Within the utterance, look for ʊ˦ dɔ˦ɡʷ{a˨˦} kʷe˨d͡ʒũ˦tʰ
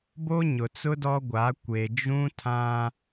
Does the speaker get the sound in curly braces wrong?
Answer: no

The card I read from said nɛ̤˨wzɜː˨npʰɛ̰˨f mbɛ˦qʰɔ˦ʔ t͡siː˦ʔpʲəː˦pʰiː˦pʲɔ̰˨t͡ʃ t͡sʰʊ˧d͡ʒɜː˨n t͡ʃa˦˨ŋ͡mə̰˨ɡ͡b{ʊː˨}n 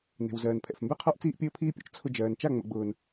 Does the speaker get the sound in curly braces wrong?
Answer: no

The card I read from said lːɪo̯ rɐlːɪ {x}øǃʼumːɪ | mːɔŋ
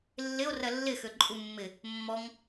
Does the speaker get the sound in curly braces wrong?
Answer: no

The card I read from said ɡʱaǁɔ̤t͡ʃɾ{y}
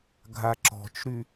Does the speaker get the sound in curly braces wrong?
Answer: no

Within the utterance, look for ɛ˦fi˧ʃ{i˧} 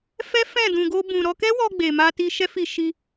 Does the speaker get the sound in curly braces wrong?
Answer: no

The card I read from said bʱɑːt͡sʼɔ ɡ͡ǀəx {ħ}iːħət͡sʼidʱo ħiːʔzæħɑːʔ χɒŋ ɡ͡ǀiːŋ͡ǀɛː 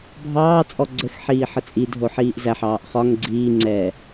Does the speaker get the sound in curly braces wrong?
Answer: no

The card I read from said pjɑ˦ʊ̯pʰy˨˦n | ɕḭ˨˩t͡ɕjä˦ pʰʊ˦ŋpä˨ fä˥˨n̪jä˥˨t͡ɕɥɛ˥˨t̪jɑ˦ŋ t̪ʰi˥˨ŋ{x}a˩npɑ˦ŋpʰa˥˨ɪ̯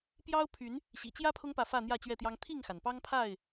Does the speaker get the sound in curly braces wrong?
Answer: no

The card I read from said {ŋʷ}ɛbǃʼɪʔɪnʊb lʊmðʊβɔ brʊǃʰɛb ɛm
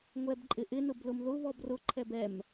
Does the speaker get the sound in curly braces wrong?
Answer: no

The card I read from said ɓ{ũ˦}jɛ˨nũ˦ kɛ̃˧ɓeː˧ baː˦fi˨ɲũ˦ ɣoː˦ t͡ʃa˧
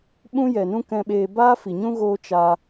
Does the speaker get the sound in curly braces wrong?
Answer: no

